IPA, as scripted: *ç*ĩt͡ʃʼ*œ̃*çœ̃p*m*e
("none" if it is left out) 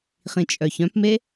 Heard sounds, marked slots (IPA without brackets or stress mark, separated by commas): χ, œ, m